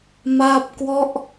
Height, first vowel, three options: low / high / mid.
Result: low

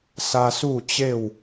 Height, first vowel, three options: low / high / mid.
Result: low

